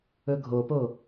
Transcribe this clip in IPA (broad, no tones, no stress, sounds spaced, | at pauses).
ɵ ɡʱ o p o